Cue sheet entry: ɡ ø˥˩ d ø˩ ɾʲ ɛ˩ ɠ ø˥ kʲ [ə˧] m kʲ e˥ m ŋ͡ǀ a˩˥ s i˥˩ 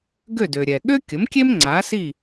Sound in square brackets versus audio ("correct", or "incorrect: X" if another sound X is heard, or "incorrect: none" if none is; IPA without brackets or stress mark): incorrect: ə˩˥